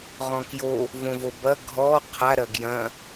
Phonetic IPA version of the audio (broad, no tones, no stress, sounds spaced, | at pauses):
ʁ ɔ̃ k j o | v õ v o b ɐ ɡʱ ɔ qʰ a ɾ ɐ ɡ j ɐ̃